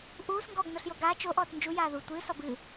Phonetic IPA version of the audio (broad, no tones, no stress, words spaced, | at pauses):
ʔuːsŋɡɔːɡ noɬjoɡaː t͡ʃo ʔɔːtnd͡ʒu jaːðu tʷɨː sɔbɨː